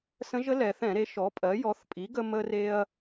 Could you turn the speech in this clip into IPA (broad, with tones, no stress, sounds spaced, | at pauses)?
s ə̃˧˥ ʒ ə˧˥ l ɛ˩˧ θ ɛ̃˧˩˧ ɾ e˩˥ ʃ ɔ˩˥ pʼ ɜ˩˥ j ɔ˩˥ θ pʼ i˩˥ ɡ ə˧ m ə˧ r e˧ ɐ̯